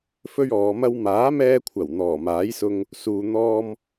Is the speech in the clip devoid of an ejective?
yes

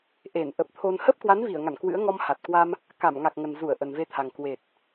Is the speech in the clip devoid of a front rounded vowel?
yes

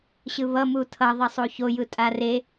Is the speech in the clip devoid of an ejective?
no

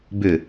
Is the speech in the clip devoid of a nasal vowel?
yes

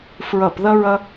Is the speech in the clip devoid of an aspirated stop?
yes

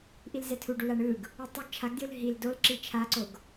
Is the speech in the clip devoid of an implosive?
yes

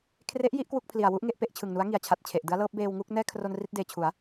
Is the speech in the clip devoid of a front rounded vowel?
yes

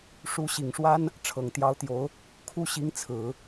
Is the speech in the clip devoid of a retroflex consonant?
no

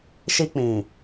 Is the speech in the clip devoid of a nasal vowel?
no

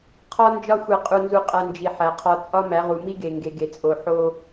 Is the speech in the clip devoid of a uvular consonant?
no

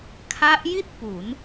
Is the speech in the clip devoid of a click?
yes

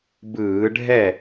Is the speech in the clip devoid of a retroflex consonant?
no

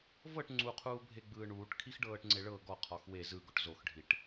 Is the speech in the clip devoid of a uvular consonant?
no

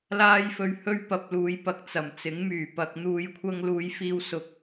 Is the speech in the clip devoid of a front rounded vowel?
no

